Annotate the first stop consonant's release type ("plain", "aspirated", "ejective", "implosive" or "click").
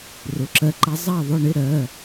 click